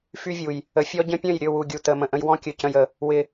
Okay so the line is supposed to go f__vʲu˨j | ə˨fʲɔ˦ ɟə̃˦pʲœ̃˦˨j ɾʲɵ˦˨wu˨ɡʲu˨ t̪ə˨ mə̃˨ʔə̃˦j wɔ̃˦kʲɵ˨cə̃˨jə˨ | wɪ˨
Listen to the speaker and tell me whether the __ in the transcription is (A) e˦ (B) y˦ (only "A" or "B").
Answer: B